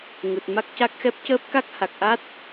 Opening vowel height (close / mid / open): close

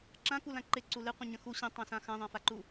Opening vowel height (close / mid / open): open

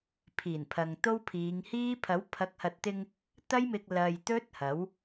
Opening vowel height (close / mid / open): close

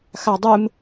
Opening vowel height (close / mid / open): open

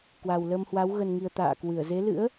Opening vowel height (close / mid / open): open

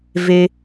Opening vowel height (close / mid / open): mid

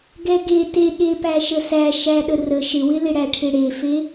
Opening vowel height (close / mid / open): mid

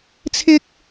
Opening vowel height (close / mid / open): close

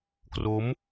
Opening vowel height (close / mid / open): mid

